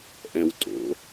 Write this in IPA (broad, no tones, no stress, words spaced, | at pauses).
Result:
ʔɛ̃w tʼo̰